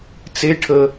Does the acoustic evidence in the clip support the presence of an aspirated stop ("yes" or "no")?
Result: yes